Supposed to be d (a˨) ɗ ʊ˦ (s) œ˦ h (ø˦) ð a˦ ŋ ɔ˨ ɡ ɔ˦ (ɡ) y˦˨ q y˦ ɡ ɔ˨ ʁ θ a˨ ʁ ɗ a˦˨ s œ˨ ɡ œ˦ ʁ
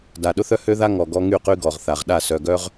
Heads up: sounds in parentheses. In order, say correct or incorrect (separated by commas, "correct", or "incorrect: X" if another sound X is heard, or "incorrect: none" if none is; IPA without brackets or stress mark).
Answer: correct, incorrect: θ, correct, incorrect: ŋ